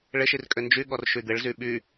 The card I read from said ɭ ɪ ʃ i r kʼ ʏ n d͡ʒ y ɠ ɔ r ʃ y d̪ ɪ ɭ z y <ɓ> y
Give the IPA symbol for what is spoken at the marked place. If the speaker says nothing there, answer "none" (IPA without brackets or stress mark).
ɓ